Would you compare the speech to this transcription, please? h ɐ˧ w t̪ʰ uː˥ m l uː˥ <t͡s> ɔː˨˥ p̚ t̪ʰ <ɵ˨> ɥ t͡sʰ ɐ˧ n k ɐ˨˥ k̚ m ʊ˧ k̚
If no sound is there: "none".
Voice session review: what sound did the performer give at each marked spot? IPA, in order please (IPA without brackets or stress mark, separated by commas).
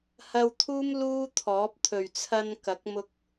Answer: t̪ʰ, ɵ˨